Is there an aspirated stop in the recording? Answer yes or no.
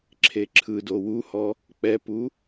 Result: yes